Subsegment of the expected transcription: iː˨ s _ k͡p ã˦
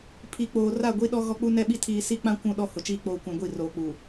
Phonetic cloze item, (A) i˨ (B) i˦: B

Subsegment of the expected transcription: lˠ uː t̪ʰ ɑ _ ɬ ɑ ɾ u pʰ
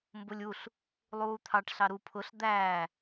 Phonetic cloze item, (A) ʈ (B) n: A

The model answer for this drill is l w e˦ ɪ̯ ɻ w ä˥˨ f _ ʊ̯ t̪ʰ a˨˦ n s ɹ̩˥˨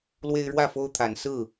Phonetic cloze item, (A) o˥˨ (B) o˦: B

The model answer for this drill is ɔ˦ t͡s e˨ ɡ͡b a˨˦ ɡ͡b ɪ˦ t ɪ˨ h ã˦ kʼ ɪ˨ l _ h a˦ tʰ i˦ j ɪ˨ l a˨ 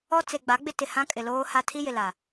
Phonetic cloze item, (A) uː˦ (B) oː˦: B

